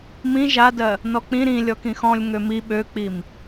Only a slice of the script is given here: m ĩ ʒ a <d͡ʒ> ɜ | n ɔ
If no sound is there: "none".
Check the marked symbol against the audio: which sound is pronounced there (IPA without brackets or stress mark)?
d